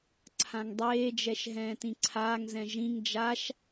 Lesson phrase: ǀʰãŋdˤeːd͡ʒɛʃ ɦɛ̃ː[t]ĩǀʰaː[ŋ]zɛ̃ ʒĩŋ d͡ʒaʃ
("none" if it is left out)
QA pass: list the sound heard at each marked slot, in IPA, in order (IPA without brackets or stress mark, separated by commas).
t, ŋ